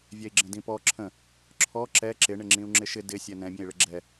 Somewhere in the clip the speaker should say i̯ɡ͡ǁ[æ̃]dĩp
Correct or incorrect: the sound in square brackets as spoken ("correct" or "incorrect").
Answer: incorrect